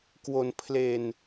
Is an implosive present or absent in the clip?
absent